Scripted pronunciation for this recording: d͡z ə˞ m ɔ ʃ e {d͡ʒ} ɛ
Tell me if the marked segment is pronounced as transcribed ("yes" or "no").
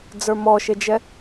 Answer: yes